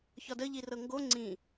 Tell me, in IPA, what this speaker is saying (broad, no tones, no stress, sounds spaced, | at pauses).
ç ɒ d ə ʎ i r ɤ ŋ ɡ o ŋ͡ǀ ĩ